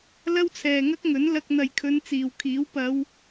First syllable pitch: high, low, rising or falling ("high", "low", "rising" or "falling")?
high